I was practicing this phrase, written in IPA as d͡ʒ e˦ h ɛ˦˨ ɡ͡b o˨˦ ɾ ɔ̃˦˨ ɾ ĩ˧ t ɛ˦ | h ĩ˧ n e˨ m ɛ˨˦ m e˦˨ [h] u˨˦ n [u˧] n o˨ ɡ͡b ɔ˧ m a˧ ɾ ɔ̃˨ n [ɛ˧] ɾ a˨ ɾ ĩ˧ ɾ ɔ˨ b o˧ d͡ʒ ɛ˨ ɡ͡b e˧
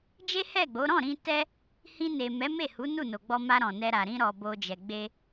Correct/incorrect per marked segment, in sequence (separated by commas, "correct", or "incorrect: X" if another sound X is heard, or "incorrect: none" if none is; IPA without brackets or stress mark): correct, incorrect: u˦˨, correct